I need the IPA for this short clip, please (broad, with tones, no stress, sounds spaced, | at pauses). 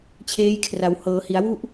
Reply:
t͡ɕʰ eː˦˥ j kʰ r a˩˦ w h ɤː˩˦ h i˩˦ a̯ w u˥˩ ʔ